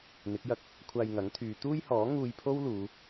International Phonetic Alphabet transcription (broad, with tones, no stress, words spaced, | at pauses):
n̪ɪ˨˥k̚jɐ˧k̚ | kʷʰaː˧jŋɐ˨˥ŋ t̪ʰyː˨˧ t̪uː˥jhɔː˨˥ ŋuː˧jpʰo˥w luː˨˧